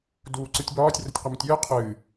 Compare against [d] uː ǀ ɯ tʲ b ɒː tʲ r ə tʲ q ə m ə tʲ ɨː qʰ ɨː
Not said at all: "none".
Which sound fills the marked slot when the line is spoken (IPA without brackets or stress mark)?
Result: d